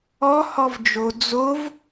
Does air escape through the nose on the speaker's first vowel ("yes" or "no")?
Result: no